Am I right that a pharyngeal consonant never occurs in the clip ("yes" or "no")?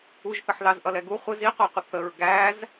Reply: no